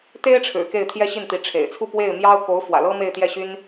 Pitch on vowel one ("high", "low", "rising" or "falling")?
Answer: high